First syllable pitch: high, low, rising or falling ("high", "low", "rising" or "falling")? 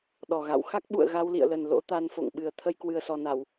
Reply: low